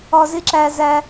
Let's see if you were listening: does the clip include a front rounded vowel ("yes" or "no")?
no